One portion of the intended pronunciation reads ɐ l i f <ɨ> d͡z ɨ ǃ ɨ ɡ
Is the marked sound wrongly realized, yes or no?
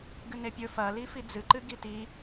yes